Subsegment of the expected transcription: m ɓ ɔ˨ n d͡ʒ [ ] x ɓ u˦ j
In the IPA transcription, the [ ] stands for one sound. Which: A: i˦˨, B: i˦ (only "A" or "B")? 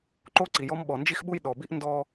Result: B